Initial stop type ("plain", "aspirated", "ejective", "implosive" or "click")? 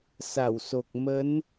plain